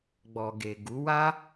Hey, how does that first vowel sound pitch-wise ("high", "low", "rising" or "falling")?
low